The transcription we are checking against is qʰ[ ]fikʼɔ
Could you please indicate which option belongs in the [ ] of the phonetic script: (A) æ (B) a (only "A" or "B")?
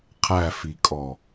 A